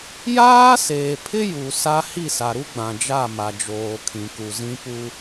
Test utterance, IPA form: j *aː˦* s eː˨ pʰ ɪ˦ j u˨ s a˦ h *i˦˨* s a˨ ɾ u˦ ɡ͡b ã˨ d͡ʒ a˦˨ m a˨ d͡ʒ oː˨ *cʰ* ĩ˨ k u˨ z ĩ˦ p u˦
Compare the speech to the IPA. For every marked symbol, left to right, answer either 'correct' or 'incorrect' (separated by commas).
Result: correct, correct, incorrect